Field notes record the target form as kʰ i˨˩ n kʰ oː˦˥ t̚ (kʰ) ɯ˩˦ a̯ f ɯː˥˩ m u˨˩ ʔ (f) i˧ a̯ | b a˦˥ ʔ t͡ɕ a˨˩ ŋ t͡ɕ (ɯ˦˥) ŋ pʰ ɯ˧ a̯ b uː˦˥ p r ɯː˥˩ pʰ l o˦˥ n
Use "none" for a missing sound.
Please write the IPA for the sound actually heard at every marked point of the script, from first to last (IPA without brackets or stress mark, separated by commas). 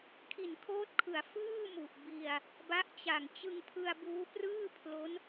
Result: kʰ, b, ɯ˧